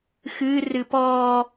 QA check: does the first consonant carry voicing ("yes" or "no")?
no